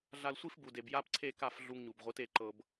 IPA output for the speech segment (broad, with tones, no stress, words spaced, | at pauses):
ɮa˧lsʷi˥fbu˩de˩b ja˥pǀʰe˥˩ka˥˩f ɮu˧ŋɲu˩bʁʷɯ˩˥te˧ ǃɤ˩b